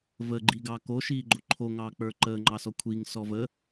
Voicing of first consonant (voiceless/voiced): voiced